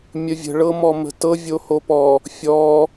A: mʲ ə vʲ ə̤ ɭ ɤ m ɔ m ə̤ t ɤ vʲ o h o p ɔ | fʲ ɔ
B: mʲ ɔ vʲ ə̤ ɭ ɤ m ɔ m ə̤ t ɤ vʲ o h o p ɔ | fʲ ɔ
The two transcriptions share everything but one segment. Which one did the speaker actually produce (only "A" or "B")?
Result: A